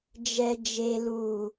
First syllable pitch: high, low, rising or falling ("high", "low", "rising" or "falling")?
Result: low